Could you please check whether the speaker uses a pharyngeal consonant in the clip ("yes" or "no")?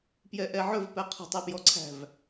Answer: yes